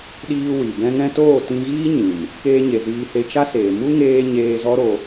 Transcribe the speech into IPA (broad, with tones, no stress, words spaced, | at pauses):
ɗiː˧ wi˨ bɛ̃˧ŋɛ̃˧toː˦˨ tĩ˧ɣiː˦ɲĩ˨m | keː˧ɲe˨ ziː˧he˧ t͡ʃa˦seː˨ mu˦ŋeː˧ ɲeː˧zɔ˦ɾo˧